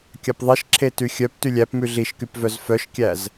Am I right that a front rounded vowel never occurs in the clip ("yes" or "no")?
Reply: no